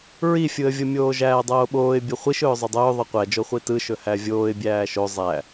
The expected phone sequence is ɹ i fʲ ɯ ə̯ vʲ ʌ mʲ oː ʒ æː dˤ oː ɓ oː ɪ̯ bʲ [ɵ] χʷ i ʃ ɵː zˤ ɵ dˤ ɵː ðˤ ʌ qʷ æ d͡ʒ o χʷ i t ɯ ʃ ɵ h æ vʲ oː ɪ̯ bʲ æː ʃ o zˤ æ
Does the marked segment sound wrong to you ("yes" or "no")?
no